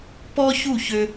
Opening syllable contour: high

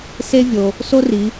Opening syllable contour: high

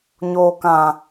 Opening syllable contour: low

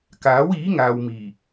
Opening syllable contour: rising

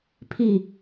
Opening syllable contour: falling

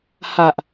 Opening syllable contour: low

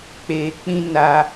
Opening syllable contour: low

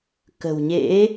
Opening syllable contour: low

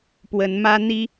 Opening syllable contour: rising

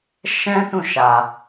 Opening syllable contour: high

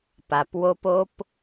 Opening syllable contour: low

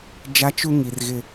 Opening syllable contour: high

